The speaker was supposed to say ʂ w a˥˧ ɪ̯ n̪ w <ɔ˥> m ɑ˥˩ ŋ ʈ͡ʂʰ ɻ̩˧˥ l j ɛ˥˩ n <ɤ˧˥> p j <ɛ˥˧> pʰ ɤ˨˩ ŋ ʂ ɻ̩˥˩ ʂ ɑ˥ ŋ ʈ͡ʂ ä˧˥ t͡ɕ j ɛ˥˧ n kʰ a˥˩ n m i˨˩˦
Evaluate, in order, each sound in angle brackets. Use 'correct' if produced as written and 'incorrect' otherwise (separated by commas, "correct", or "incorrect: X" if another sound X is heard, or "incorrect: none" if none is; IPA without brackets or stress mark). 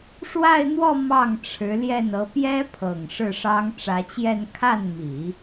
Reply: incorrect: ɔ˥˧, correct, incorrect: ɛ˥